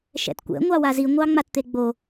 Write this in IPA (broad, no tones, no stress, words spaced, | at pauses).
ʃɛ̰tkʷɛ̰ ŋʷɑwazi ŋʷɑŋ͡matt̪eɡ͡bo